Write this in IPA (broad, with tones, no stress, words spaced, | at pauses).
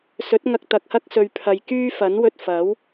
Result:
sɵ˨˥t̚ ŋɐ˧k̚t̪ɐ˨k̚hɐ˥k̚ sɵ˨ɥpʰɐ˨jkyː˥ fɐ˨˥nwɵ˧t̚ fɐ˨˥w